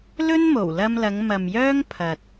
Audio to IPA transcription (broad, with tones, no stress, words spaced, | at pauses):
lɵ˥nmo˨˩wlɐ˧mlɐ˨˧ŋ mɐ˨mjœː˥ŋ pʰɐ˨t̚